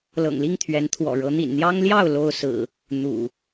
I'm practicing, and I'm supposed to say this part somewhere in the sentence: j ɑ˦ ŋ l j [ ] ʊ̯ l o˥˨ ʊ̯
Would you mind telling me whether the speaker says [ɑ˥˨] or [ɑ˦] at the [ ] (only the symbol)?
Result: ɑ˥˨